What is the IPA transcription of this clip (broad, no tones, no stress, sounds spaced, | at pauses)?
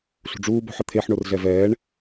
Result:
ɬ ṳ ɖ͡ʐ uː b o̤ ħ ə t̪ʰ e ħ ɳ o r ɮ ɛ v ɛː ɳ